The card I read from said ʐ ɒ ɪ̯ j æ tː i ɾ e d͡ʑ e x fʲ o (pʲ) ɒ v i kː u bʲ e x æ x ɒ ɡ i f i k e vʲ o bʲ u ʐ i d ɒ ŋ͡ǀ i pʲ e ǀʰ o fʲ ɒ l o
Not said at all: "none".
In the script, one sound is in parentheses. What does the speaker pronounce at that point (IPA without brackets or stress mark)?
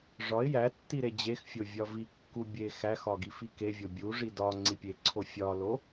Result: vʲ